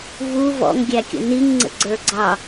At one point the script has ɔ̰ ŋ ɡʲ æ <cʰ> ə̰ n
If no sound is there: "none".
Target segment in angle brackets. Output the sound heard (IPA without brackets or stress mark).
kʲ